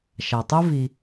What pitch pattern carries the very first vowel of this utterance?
low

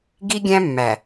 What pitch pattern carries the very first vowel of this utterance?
high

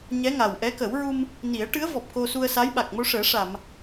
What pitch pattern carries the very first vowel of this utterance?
rising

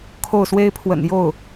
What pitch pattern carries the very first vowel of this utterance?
falling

